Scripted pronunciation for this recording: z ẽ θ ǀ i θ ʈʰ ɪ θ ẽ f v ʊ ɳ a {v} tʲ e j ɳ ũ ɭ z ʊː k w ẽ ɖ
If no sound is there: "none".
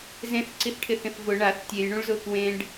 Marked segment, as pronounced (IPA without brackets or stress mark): θ